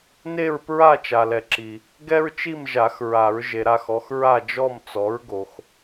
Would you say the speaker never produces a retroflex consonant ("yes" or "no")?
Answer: yes